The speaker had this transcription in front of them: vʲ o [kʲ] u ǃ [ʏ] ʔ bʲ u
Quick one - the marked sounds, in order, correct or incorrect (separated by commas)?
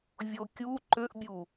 correct, correct